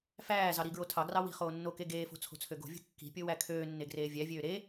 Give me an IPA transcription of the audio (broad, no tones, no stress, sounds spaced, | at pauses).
f æː z ɑ ɾ i ɡ ɹ o tʰ ɑ ɡ r ɑ w i̤ χ oː nː o k e ɡ eː f o̤ t͡sʰ o̤ t͡sʰ ø ɡ o̤ vʲ o̤ kː i̤ pʲ o w æ kʰ øː nː e ɡ r eː vʲ æ vʲ øː ɾ e